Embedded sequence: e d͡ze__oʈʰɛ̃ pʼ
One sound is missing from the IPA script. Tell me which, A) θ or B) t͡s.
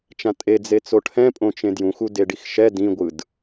B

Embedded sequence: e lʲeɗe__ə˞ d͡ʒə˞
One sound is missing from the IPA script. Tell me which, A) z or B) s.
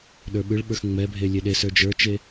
B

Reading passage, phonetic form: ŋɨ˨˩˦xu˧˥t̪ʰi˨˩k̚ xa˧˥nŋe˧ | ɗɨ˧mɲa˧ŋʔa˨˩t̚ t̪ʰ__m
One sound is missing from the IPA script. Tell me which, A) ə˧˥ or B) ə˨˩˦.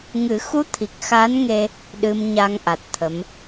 A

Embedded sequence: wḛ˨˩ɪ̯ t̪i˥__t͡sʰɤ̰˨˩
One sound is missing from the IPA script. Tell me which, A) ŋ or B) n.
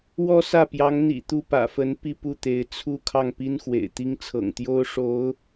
A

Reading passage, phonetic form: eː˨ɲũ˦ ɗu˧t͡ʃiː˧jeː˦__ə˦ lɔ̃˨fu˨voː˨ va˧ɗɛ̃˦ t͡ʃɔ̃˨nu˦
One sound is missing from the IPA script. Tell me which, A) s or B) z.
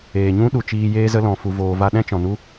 B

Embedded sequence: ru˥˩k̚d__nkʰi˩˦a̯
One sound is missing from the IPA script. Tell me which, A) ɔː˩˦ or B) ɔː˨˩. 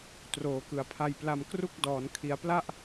A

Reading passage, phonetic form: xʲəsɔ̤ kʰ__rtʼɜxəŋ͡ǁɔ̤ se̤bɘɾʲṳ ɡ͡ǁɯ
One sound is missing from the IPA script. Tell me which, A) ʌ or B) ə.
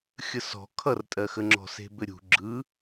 A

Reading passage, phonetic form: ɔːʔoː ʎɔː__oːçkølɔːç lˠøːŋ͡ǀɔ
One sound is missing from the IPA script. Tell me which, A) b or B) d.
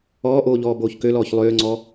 A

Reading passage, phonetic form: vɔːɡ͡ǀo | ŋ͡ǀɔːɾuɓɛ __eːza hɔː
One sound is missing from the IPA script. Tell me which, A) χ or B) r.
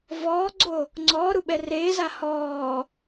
B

